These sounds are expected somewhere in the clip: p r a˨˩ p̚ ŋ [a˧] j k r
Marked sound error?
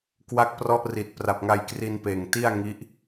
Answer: no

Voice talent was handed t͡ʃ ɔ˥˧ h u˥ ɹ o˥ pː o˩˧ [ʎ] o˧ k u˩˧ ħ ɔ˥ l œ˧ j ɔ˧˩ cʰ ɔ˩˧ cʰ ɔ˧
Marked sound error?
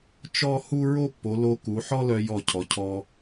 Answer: yes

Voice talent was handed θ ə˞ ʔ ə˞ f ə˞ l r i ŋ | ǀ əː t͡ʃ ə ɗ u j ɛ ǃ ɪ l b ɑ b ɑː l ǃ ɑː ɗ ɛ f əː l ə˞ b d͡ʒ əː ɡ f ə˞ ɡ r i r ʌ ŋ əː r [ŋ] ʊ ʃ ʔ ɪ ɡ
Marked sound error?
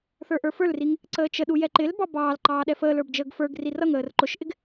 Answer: yes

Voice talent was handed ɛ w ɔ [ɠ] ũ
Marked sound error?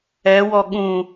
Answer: no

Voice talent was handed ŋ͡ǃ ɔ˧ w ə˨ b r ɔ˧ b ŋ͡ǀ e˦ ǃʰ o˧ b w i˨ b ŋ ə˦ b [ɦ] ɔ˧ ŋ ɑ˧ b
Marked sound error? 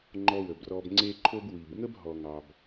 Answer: no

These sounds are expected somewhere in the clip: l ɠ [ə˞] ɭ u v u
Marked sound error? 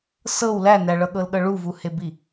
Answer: yes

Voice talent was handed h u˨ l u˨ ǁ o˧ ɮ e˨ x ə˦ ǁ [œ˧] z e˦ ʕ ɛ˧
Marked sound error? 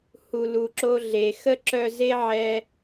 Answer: no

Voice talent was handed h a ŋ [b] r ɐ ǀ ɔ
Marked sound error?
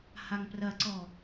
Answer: yes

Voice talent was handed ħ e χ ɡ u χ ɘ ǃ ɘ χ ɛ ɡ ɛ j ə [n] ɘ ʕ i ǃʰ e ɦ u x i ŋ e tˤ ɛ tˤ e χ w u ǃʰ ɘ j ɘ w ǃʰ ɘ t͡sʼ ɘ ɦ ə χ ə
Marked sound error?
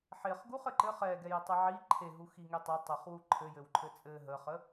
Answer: yes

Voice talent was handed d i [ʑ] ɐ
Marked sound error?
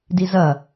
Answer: yes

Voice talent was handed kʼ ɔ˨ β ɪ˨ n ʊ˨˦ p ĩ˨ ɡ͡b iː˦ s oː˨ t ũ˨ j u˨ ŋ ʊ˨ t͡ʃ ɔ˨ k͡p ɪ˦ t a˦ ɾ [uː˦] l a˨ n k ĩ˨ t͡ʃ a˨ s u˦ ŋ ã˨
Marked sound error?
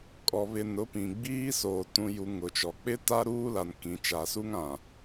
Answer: no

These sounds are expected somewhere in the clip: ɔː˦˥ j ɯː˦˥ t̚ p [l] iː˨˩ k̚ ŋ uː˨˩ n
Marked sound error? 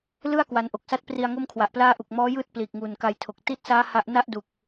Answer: no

